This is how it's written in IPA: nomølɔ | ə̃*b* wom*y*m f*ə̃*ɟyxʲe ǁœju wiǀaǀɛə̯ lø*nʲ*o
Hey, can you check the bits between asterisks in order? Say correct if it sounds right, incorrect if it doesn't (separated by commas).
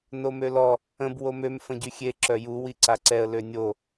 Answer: correct, incorrect, correct, correct